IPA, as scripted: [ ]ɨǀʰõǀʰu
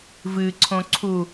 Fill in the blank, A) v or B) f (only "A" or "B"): A